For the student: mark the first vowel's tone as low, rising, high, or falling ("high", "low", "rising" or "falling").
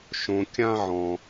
low